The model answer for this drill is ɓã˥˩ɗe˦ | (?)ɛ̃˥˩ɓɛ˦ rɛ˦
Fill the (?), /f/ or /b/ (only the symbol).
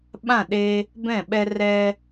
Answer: b